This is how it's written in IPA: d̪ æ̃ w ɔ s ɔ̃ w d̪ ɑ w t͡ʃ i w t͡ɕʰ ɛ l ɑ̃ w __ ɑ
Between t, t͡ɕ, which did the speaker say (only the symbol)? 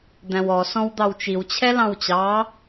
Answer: t͡ɕ